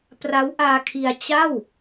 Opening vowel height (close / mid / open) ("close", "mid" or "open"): open